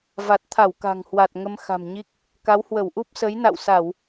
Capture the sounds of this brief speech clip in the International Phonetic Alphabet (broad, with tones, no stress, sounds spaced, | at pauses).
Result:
v a˨˩ t̚ t̪ʰ a˧˩ w k a̤˨˩ ŋ h w a˨˩ t̚ ŋ ə˧ m x a̤˨˩ m ɲ i˦˥ k̚ | k a˨˦ w h w ə˧˩ w ʔ u˦˥ p̚ s ə˨˦ j n a̰˧˨ w s a˧˩˨ w